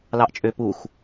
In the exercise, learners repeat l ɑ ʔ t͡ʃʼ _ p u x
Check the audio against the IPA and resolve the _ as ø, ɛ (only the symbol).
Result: ø